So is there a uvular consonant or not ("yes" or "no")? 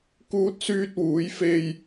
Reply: no